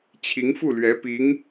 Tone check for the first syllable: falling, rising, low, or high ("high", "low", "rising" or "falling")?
rising